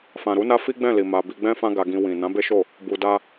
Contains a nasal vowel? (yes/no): yes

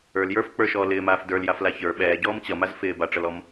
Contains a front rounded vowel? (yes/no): no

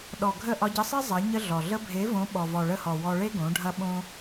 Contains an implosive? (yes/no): yes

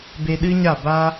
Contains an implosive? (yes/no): yes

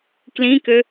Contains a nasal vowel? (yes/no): yes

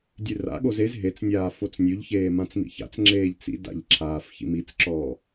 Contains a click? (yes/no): yes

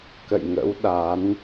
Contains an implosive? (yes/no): yes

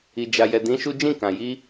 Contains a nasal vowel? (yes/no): yes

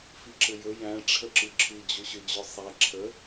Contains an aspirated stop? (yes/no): yes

